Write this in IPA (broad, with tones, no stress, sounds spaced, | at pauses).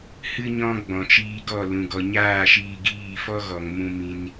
h ɨ˧ ɲ ɔ̃˧ ɡ͡b ɔ̃˨ t͡ʃ iː˧ ɡ ɔ˦˨ l ũ˨ ɡ ɔ˨ ɲ aː˦˨ ʃ iː˧ ɡ iː˦˨ f ɔ˦ ɣ ɔ˨ ŋ m ũ˧ m ĩ˧ n